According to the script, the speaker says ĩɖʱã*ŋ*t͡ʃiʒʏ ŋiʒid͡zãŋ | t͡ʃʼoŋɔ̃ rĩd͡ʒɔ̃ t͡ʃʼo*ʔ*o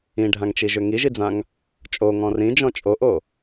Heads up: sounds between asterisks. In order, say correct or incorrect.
correct, correct

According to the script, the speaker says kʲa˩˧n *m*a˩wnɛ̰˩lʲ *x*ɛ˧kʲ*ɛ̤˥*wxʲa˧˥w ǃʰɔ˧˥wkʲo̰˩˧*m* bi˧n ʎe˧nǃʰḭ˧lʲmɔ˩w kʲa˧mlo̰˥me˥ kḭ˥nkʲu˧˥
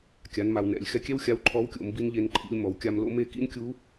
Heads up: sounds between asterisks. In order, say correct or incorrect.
correct, correct, incorrect: ɛ˥, correct

